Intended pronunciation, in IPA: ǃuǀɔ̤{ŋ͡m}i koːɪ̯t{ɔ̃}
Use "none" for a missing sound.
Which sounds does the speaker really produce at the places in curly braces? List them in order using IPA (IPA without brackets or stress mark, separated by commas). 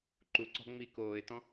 ŋ͡m, ɔ̃